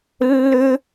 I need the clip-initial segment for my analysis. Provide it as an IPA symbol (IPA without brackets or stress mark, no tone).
lː